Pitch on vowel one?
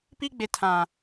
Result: high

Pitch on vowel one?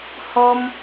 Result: high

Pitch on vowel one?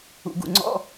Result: low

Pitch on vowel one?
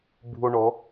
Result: high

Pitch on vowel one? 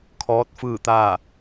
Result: rising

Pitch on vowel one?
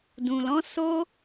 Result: low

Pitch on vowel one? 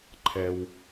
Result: low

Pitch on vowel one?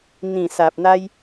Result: low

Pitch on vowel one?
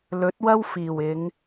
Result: rising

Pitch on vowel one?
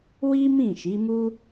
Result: high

